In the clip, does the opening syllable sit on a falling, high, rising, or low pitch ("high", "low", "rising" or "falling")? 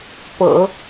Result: low